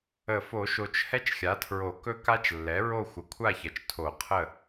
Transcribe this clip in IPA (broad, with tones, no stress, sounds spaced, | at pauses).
ə˨˩˦ f o˨˩˦ ʃ o˨ t͡ʃ h ɛ˦ t͡ʃ xʲ a˩˥ tʰ ɹ o˨˩˦ k ɵ˦ k a˦ t͡ʃ lː ɛ˩˥ ɹ o˦˨ xʷ ə˩˥ kʷʰ a˦˨ ç ɐ˨ t͡ʃ tʰ o˨˩˦ qʰ ə˦˨